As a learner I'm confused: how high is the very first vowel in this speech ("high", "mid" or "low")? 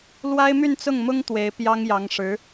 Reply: low